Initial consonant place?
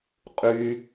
uvular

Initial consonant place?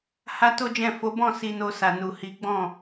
glottal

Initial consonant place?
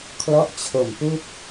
velar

